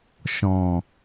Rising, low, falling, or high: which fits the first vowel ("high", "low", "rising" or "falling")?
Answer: low